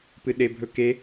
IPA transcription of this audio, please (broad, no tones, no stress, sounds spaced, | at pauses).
p ɨ ɗ e bʱ ɵ k e